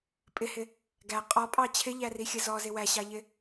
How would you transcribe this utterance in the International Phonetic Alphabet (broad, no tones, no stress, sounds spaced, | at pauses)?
pʼ ɪ h ɪ | ɡ æ qʼ ɔ pʼ ɑ t͡ɕʰ ɪ ʎ æ r i xʲ ə z ɔ z ɪ w æ ɕ ɑ ʎ ɪ